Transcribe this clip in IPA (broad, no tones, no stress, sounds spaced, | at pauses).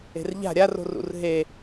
e̤ r ʎ a̤ ɾʲ a r o̤ r ṵ r ɦ e